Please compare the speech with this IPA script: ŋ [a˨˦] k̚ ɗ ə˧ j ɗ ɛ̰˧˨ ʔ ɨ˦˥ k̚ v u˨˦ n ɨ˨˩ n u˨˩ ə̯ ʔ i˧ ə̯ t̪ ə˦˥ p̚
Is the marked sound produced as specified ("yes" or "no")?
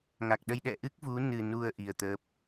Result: no